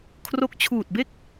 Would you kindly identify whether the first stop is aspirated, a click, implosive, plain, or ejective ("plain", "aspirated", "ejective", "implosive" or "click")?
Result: aspirated